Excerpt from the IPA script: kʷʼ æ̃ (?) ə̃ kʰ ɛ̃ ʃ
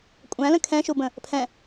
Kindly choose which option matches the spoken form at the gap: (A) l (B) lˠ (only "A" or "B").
A